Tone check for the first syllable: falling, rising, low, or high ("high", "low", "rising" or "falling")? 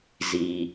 low